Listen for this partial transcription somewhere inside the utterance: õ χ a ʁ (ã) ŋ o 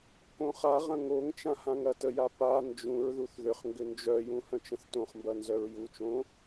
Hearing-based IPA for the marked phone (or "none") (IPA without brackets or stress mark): ɐ̃